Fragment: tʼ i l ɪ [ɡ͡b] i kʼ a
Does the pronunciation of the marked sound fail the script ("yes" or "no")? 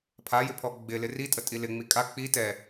yes